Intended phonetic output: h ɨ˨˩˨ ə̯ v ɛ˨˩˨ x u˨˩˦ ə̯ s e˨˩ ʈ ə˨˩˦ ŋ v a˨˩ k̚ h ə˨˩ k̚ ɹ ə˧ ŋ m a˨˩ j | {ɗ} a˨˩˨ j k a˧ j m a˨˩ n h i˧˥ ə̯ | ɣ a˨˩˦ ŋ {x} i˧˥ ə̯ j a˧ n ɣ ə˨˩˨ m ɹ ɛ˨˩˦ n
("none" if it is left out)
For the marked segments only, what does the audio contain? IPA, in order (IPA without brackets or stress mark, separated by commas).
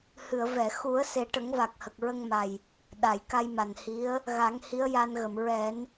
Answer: ɗ, h